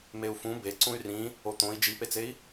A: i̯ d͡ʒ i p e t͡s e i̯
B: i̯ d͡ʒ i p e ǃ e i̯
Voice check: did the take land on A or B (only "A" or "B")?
A